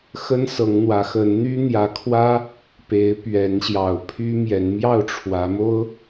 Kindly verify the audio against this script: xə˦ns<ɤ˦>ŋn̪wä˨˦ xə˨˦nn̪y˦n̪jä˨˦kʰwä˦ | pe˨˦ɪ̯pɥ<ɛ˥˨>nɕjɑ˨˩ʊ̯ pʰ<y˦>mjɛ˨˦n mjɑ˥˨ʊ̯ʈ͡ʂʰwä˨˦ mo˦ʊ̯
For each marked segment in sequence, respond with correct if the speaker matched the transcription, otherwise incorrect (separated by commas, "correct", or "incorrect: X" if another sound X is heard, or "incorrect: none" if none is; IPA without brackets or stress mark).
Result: incorrect: ɤ˨˦, incorrect: ɛ˨˦, correct